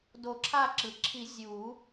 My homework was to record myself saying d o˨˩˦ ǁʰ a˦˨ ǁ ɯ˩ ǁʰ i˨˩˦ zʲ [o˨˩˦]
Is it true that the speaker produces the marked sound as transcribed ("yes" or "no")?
no